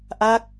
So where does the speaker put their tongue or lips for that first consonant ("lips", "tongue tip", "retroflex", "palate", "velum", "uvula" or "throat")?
throat